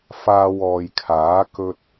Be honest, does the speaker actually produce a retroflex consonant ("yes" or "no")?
no